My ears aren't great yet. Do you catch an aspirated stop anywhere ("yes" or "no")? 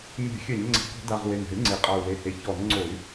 no